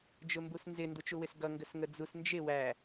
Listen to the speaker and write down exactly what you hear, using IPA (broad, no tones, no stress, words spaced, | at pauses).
d͡ʒʊmbusnzɪ ndut͡ʃuwɪsɡʌ ŋɡəsŋəd͡zus nd͡ʒɪ wæ